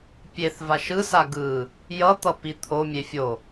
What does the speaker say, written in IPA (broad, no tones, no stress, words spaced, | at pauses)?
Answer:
pʲeθva ʃɯsa ɡɯ | jʌt̪ʌ pit̪ʰomʲe fʲo